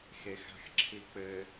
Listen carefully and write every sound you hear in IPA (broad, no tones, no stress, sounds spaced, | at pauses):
x e x a̤ x ǁʰ i k͡p ɘ